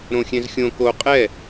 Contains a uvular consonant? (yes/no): yes